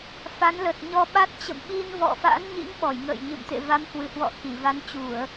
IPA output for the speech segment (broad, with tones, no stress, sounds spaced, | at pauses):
f a˨˦ n l ə˨˩ t̚ ɲ ɔ˧ ɓ a˦˥ t̚ t͡ɕ ə̰˧˨ m ɓ i˧ n v ɔ̰˧˨ f a̰˧˥ n ɲ ḭ˧˥ ŋ ɓ ɔ˧˩ j ŋ ə̰ː˧˨ j ɲ ɨ̰˧˨ m t̪ ḛ˧˨ v a˨˦ m h w ɨ˧˩ h w ɔ̰˧˨ x i˧˩ v a˨˦ n t͡ɕ u˧˩˨ ə̯